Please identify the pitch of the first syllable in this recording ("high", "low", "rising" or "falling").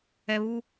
low